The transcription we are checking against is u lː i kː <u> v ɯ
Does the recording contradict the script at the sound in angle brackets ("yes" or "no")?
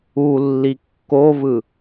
yes